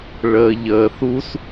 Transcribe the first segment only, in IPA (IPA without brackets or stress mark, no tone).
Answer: ɭ